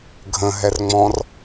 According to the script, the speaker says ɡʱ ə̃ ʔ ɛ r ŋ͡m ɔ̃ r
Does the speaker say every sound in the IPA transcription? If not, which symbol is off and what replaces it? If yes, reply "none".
ʔ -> ɦ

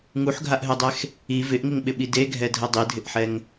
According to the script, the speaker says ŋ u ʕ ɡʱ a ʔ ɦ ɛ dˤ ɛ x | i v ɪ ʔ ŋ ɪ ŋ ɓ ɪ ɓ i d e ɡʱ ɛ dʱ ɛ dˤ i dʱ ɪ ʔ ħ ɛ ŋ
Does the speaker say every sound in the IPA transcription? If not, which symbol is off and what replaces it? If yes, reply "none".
ʕ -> ħ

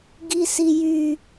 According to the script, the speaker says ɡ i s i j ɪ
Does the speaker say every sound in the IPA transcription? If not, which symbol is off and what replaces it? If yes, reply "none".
ɪ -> y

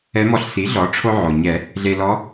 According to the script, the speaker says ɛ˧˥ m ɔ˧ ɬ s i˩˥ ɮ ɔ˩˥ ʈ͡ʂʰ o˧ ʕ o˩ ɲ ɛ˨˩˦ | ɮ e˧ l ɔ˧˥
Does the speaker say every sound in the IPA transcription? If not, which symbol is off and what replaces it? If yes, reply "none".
none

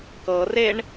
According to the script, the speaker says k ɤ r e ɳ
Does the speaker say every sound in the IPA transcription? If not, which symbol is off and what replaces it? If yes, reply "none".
none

